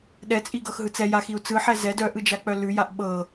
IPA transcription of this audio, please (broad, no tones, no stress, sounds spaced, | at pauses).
ɗ ɛ t͡sʼ i ɡ ɤ x ɦ ɯ t͡s ɛ j a x i u̯ t͡s ɯ ħ ɛ z ɛ d œ ʔ ɯ d͡ʒ a k͡p œ l ʉ j a ʔ ɓ ɤ